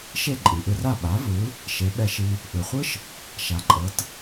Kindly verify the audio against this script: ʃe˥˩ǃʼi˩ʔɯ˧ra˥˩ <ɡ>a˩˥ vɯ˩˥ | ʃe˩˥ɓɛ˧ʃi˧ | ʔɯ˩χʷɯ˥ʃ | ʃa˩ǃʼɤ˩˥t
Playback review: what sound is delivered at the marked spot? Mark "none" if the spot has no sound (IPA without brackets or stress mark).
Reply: ɓ